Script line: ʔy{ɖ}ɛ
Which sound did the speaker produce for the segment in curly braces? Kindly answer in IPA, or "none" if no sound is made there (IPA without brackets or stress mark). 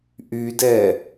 d